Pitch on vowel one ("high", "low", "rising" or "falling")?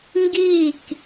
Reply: falling